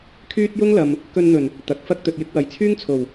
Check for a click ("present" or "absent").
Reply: absent